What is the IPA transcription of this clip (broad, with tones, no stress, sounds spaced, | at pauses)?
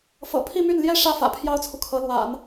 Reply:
f ɤ̰˨˩ pʰ i˥˧ m y˥˩ n l j ɛ˥ ʂ ä˥˩ f ä̰˨˩ pʰ j ɑ˥ ʊ̯ t͡sʰ u˨ kʰ ɤ˧˥ l w a̰˨˩˦ n